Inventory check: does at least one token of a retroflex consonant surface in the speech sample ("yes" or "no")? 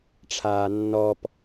yes